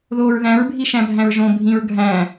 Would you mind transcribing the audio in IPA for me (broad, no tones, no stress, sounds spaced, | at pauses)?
ð oː ɹ ð æ̃ ɹ bʱ i ʃ æ̃ bʱ æ̃ ɹ ʒ õ bʱ ĩ ɹ ɡʱ æ̃